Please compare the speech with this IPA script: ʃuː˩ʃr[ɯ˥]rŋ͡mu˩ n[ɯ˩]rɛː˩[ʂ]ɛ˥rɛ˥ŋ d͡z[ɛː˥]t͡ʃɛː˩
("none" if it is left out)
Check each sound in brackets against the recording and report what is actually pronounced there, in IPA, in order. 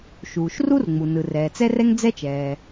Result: u˥, ɯ˩, t͡s, ɛ˥

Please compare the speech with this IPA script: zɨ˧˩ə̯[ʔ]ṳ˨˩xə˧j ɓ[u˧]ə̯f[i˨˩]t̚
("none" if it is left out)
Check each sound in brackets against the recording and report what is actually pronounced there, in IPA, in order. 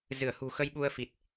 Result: h, u˧, i˨˩

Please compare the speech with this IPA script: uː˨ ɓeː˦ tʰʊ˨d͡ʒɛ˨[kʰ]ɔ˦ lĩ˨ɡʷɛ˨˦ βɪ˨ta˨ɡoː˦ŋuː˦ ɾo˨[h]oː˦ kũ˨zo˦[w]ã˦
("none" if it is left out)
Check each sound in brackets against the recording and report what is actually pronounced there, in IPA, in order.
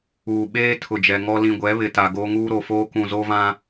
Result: ŋ, f, v

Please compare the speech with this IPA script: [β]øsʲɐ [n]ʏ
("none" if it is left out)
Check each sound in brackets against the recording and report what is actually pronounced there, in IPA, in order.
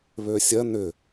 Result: β, n

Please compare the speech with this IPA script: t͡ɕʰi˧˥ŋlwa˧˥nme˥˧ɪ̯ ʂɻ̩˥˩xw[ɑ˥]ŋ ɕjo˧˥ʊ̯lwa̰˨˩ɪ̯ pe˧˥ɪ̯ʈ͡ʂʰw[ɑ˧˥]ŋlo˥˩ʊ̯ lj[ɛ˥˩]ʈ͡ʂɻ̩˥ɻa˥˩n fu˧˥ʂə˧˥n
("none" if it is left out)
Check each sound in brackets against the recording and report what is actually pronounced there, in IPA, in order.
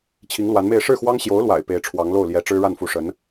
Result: ɑ˥, ɑ˧˥, ɛ˧˥

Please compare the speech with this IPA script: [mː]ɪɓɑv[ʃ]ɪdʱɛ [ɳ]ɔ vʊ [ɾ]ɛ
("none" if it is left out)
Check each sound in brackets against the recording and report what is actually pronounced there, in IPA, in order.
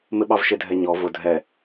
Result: m, ʃ, ɲ, dʱ

